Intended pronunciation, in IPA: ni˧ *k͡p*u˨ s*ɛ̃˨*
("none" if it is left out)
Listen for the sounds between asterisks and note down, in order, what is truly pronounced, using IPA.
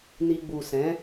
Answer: ɡ͡b, ɛ̃˨˦

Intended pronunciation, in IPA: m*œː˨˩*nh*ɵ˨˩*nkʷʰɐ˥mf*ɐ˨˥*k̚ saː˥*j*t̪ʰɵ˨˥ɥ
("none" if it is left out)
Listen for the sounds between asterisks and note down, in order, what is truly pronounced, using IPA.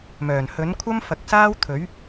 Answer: œː˨˩, ɵ˨˥, ɐ˨˥, w

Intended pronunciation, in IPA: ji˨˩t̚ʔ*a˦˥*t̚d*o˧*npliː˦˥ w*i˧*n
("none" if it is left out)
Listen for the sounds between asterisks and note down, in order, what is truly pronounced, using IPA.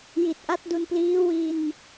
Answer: a˦˥, u˧, i˧

